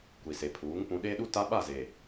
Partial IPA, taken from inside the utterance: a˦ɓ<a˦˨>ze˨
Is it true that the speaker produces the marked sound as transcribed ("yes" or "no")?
yes